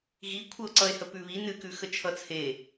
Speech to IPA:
ɣ i kʷʰ ə o̯ ǀ ʌ e̯ h ə p ʉ β i n ɨ k ʉ x ə t͡ʃʰ ʌ t͡sʰ e

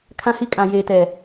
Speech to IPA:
kʰ ã˦ h i˦ kʼ ã˨ j eː˨ t ɛ˨

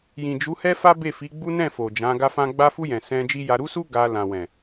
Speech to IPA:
j ĩ˨ d͡ʒ u˨˦ h ɛ˦ f a˦ b e˦˨ f i˨˦ ɡ͡b u˦ n ɛ̃˦˨ f o˨ d͡ʒ ã˨˦ ɡ a˦ f ã˦ ɡ͡b a˧ f u˧ j ɛ̃˨ s ɛ̃˧ d͡ʒ i˦ j a˧ ɾ u˦ s u˦ ɡ a˧ l ã˨ w ɛ̃˨

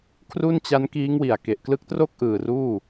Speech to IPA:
kʰ r u˥˩ n t͡ɕ a˦˥ n k iː˦˥ ŋ w i˨˩ a̯ k e˨˩ ʔ k l ɯ˦˥ k̚ t r o˥˩ k̚ ʔ ɯː˨˩ r uː˥˩

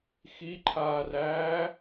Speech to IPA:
x i ǃʰ aː r æː

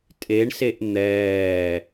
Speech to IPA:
tʼ e ɳ s e ʔ n̪ ɛː

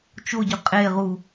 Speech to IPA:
t͡ʃ o ɟ ʊ qʼ e ʁ u

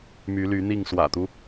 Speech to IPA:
m y˨˦ l y˨˦ n̪ i˥˨ ŋ s w ä̰˨˩ t̪ u˦

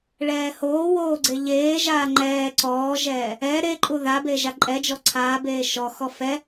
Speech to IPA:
ɭ ɛː h oː w oː ɡ͡ǀ e ʎ eː ʒ aː ŋ͡ǃ ɛː ǀ ɔː ʒ ɛː | ɛ ɾ e ǃʼ u ð a b e ʒ a ǃʼ ɛ d͡ʒ ɔ ǀʰ aː b eː ʃ ɔ x ɔ f ɛ

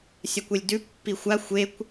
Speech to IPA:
sʲ ɐ kʷ e lʲ d ʉ pː i xʷ a xʷ e kʷ

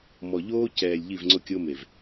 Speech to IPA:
m ɔ˨ ʎ oː˦ c ɛː˨ lʲ ʎ i˦˨ v ŋ͡ǀ ʊ˦ kʲ o˦ m e˨ v

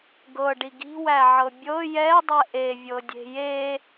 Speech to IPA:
ɡ ɤ ɖ i ɡ i̤ w æ ʕ ɤ bʲ ɤ j ɛ dˤ ɛ ʔ e vʲ ɤ dʲ e̤ j e

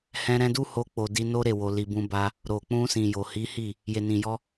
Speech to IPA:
h ɛ̃˧ ɾ ɛ̃˧ d u˦ h o˧ k͡p o˨ d i˧ n o˦ ɾ e˦˨ w o˨ l i˨ b ũ˧ b a˧ | ɾ o˨ k͡p ũ˧ s ĩ˨ j o˨ h i˨˦ h i˦˨ | j e˨ n ĩ˨ j ɔ˧

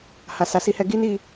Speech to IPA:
h a˨ s a˨ s i˧ h ɛ˧ ɡ i˦ n i˦˨

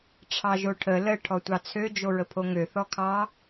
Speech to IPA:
ʈ͡ʂʰ ɑ ʒ o ʈʰ ə l ə ʈʰ ɔ tʷ ɑ t͡sʰ ø d͡ʒ o ɹ ə pʰ o ŋ ø θ ɔ kʰ ɑ

